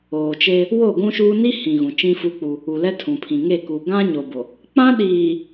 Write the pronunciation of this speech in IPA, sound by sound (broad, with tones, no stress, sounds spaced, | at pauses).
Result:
oː˨ t͡ʃ e˦ | w o˦˨ ɡʷ ũ˦ ʃ uː˦ n i˦ h ĩ˨ ɣ ũ˨ t͡ʃ ĩ˦ f u˦ k͡p u˦ | u˨ l ɛ˦ tʰ ũ˨ pʰ ĩ˨ ŋ e˦˨ k u˨ ɡ ã˦ ɲ o˨ b o˨ | k͡p ã˦ ɗ iː˨